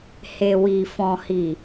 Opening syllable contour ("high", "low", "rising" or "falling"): low